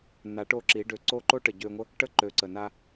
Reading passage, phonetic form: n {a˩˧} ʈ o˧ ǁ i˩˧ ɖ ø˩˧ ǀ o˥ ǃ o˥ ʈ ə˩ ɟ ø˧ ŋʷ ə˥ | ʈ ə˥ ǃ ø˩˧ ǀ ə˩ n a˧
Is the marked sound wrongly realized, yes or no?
no